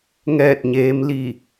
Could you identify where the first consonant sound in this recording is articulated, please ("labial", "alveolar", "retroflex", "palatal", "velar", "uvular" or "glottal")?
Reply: velar